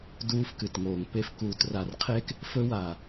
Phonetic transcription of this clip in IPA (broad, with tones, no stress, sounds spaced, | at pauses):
d uː˦ f k ɨ˨ t ŋ oː˨ ŋ p e˨ f k uː˨ t r a˨ r qʰ eː˦ k | f ɵ˦ w aː˨